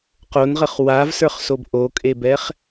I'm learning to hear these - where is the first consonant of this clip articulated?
uvula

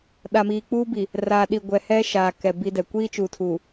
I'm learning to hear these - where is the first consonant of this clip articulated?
tongue tip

